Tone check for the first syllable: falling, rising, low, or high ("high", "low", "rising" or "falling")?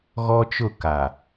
high